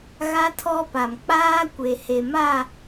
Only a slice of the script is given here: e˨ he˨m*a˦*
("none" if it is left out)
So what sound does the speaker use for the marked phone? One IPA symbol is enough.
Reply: a˦˨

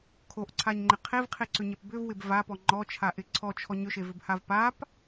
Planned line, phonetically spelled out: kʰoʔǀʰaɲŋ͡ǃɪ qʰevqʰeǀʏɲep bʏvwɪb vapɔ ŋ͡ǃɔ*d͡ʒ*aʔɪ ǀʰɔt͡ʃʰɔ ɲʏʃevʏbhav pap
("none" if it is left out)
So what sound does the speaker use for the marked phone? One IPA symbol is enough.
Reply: t͡ʃʰ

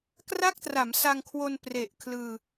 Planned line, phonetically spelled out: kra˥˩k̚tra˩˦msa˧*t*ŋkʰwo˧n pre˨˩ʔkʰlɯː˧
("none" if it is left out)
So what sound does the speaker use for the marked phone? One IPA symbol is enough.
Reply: none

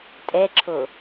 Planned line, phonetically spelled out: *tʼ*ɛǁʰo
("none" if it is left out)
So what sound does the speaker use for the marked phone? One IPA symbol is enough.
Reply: tʼ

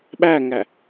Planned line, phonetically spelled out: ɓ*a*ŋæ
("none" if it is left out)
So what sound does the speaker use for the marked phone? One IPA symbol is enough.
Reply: æ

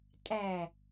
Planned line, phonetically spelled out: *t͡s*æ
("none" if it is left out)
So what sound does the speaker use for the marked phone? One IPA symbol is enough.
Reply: tʼ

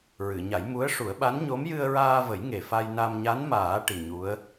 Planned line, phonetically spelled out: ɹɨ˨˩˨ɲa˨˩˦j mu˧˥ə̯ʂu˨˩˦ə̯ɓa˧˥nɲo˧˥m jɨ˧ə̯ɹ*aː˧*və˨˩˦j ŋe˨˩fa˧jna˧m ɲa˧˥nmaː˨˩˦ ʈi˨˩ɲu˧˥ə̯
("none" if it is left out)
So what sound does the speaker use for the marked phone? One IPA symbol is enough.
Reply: aː˧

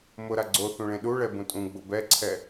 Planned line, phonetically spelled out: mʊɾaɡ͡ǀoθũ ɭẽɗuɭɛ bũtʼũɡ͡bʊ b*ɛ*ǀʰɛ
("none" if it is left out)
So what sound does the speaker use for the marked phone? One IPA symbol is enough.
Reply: ɛ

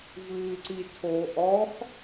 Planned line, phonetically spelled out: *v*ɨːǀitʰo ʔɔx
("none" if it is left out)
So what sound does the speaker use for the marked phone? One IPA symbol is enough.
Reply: v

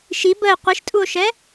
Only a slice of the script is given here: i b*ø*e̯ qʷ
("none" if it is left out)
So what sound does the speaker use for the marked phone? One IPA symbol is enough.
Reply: ə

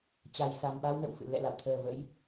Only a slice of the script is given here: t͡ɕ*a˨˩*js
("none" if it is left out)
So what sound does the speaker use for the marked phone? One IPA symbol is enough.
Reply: a˨˩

